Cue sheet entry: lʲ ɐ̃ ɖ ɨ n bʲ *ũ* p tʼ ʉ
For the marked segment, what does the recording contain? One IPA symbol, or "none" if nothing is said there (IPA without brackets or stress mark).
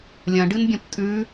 õ